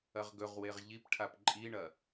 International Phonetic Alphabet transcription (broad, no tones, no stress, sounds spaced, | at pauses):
ɐ ʁ ɡ ɵ ʁ w e ʁ ʎ i p ʈʰ a p ǃʼ i ɳ ɐ